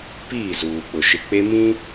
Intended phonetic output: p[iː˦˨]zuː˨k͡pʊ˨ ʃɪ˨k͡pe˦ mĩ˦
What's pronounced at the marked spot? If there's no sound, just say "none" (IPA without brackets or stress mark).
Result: iː˦˨